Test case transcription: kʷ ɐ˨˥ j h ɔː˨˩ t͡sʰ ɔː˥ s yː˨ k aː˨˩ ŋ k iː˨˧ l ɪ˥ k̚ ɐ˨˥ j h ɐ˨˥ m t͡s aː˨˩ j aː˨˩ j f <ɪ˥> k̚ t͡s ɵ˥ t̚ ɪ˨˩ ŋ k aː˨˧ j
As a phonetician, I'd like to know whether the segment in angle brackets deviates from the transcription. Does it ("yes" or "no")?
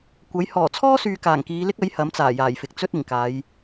yes